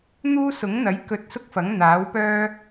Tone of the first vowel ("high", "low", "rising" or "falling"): high